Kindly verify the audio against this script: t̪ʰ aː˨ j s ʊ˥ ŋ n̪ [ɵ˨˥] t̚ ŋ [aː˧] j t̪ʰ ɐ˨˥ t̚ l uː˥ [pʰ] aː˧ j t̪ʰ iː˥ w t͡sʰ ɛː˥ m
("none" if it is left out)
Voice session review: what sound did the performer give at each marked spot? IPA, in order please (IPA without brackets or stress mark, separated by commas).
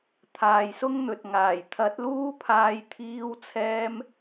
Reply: ɵ˨, aː˨˩, pʰ